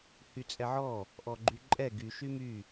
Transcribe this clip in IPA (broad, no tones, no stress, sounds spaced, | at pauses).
h y t͡sʼ ɛ ʕ ɔ | ʔ ɔ ɡ͡ǃ y ǃʼ ɛ ɡ y ʃ y m y